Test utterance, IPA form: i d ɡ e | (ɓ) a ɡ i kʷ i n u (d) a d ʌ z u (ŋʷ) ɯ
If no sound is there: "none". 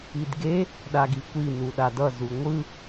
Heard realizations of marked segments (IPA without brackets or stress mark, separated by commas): ɗ, ɗ, ŋʷ